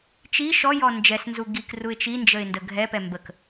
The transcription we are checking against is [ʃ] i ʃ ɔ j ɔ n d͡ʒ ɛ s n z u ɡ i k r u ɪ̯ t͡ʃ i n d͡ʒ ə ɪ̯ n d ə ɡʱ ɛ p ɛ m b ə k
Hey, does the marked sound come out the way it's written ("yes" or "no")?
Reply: no